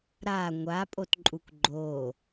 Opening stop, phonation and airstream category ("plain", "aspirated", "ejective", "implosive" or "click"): ejective